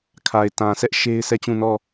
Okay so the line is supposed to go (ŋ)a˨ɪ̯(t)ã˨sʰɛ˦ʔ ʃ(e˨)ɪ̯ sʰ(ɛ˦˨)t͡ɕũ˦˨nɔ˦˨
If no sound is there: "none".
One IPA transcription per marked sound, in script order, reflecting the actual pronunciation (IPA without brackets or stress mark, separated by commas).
kʰ, t, e˦, ɛ˦˨